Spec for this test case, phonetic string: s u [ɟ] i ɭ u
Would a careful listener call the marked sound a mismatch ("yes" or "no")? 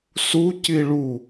yes